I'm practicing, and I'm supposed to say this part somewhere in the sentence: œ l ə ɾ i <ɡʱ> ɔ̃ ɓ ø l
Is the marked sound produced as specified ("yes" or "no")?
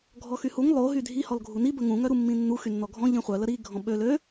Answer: yes